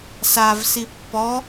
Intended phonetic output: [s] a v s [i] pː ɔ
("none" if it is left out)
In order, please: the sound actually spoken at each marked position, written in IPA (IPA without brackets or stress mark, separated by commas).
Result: s, i